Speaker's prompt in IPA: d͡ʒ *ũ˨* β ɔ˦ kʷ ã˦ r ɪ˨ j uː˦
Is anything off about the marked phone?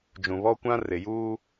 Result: no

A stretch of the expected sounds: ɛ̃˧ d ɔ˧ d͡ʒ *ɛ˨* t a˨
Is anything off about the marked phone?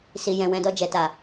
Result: no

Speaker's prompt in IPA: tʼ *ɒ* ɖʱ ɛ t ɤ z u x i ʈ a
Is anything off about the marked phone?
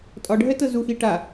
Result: no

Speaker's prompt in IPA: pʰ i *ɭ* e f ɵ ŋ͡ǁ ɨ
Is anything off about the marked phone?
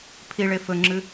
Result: no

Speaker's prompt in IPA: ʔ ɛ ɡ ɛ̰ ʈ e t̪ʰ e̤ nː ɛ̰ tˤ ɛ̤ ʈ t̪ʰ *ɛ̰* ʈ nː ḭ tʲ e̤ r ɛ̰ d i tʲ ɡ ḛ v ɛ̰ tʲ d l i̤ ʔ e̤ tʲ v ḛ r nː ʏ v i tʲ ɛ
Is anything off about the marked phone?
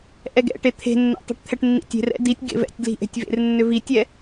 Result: yes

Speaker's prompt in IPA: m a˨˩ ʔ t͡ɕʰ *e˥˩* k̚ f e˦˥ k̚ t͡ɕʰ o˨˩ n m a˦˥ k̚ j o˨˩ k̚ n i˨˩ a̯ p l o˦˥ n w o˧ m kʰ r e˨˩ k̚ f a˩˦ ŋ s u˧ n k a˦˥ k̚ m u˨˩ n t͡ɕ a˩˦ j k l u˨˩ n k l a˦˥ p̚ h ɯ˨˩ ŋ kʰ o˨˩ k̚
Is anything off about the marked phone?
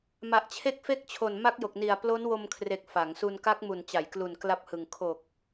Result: yes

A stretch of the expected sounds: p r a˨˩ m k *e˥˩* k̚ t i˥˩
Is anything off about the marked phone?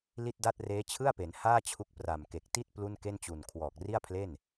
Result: yes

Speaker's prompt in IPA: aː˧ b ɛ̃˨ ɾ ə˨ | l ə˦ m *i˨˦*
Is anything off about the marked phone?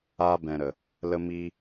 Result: yes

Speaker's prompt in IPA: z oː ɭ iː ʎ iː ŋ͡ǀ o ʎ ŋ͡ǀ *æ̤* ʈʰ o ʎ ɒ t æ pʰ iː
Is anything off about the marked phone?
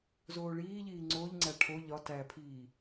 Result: yes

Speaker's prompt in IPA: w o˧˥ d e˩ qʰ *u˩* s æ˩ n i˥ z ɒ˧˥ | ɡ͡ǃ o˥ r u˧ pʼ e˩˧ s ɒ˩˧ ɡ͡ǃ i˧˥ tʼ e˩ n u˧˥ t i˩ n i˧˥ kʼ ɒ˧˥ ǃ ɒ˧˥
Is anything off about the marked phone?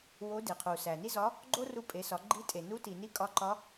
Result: no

